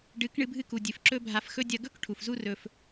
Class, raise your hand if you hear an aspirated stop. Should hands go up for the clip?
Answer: yes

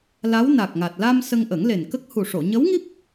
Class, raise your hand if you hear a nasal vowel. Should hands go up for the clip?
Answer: no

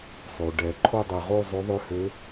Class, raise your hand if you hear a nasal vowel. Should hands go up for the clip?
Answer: no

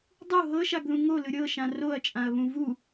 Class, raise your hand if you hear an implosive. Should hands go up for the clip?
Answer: no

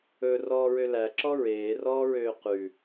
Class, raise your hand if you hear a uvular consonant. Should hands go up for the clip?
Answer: yes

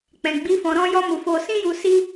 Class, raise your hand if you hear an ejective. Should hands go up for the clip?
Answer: no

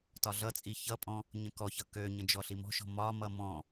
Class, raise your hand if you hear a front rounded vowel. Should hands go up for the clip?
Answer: yes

